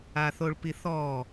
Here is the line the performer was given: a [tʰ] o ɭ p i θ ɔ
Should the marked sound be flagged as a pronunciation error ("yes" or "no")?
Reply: yes